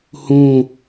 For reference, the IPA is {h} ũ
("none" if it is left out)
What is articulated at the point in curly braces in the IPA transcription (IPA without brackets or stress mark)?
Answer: h